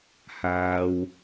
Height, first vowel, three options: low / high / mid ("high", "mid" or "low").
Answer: low